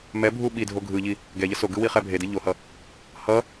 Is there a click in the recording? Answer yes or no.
no